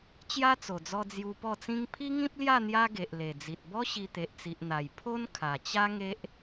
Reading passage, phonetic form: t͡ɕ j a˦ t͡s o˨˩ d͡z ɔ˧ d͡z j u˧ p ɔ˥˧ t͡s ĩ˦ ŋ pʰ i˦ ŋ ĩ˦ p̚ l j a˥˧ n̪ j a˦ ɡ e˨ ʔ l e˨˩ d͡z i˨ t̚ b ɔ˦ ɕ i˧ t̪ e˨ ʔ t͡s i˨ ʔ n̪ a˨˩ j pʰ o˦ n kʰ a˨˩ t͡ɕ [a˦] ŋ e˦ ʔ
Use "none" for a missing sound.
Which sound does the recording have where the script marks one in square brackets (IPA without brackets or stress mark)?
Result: a˦